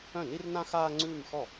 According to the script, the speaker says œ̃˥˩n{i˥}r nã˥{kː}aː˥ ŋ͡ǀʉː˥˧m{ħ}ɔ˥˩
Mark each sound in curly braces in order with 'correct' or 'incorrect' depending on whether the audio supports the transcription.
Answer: correct, incorrect: x, incorrect: x

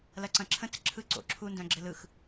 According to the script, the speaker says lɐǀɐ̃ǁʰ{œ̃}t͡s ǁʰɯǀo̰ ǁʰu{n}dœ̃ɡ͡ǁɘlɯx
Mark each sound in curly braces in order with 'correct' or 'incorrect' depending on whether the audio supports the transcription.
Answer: incorrect: ə̃, correct

